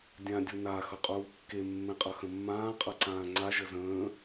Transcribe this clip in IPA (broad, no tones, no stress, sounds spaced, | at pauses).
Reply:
dʲ ã dʲ u n a x ʌ qʼ uː kː e mː ẽ qʼ ʌ x ə̃ mː ãː qʼ ʌ ǀ ãː ŋ͡ǀ a ʒ ə z ə̃ː